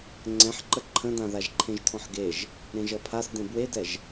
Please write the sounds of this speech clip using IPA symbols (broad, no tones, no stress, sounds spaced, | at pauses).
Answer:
ŋ͡ǀ ɛ̃ ħ ǃ ə ǃʰ ə̃ d ã ð a ʒ ǃʰ ẽ ʒ tʰ ɔ̃ ħ ɡ e ʒ | ɾ ẽ ʒ ʌ pʰ a s d ẽ b w e d ɛ ʒ